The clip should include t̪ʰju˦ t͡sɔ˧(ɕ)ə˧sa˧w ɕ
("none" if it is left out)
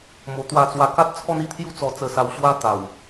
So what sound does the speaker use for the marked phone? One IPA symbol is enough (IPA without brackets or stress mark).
t͡s